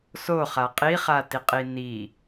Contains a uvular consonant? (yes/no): yes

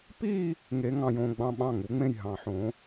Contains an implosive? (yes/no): yes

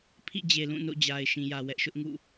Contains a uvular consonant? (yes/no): no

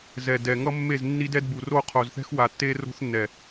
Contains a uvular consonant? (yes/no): yes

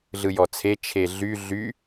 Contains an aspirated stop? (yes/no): yes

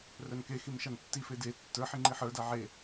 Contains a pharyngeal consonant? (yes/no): yes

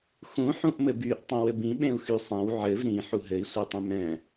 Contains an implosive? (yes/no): yes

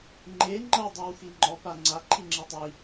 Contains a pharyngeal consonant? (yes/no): no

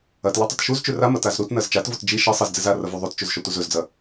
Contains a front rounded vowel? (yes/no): no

